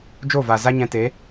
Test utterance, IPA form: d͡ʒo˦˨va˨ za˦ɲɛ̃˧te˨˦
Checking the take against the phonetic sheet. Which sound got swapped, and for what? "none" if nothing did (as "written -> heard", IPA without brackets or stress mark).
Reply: none